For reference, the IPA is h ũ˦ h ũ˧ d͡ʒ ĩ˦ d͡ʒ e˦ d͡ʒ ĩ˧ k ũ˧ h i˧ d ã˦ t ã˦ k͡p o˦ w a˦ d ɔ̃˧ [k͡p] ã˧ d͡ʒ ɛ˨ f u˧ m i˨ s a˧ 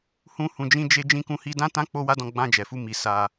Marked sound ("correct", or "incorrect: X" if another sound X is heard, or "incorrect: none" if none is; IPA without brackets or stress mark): incorrect: ɡ͡b